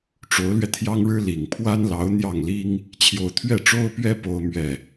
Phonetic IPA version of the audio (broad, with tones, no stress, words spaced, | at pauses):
ʈ͡ʂo˧˥ʊ̯lɥɛ˧ t̪ʰjɑ˥ŋɻɻ̩˥ li˨˩ŋ pʰwa˥nlɑ˧˥ʊ̯ n̪jɑ˥˩ŋli˥ŋ | t͡ɕʰjo˥˧ʊ̯ t̪ʰɥɛ˥˩ʈ͡ʂo˥ʊ̯pɥɛ˥ po˥ʊ̯mɥɛ˥˩